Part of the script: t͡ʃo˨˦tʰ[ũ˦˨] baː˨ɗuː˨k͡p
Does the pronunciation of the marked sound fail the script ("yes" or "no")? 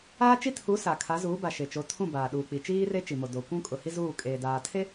no